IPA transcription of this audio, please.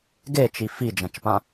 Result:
ɡ e t͡ʃ i f i d͡ʒ ɐ̃ t͡ʃ p ã

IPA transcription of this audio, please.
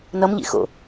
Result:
n ʌ m ʎ ḭ x o̰

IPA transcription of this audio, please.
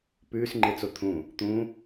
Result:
p ʉː s ŋ͡ǃ e t͡s o t̪ʰ ũ | t̪ ũ

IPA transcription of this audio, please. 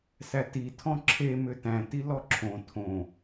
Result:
s æ t i tʰ ɔ̃ ǁʰ e m ʏ t æ̃ t i l ɔ ǁʰ õ tʰ õ

